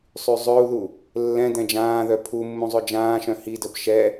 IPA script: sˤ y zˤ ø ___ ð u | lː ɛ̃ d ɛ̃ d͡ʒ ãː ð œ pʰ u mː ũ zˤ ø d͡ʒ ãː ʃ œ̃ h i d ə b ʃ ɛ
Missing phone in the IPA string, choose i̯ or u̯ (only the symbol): u̯